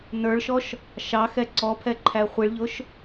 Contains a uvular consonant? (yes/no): yes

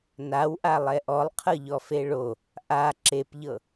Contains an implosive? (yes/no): no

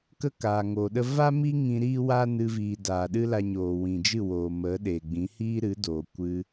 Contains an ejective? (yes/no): no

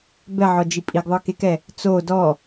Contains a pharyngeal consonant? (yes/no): yes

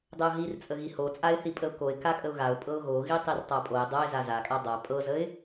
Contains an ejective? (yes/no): yes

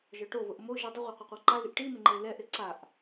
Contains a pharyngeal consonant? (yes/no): no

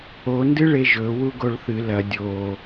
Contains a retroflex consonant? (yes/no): yes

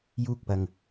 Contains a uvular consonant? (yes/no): no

